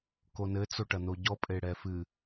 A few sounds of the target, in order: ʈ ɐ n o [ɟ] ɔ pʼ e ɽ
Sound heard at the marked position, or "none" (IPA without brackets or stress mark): ɟ